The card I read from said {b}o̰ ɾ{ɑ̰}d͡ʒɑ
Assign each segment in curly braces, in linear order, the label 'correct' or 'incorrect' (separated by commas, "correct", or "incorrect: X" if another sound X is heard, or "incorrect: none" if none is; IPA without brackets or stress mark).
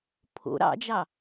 incorrect: pʰ, correct